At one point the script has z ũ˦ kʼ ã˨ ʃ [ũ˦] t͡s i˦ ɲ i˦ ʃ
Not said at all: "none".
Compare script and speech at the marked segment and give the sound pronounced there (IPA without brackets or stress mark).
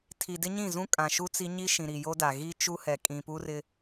u˦